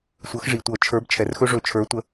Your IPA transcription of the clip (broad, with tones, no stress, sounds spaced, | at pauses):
sʷ ɤ˨˦ x ʐ i˨˩ tʷ ɤ˧˩˧ t͡ʃʰ ə˞˨˦ b t͡ʃʰ ɛ˨˩ r x ɵ˦ ʐ ɵ˧˩˧ t͡ʃʰ ə˞˨˦ tʷ ə˨˦